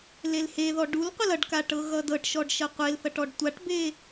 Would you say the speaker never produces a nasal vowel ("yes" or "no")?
yes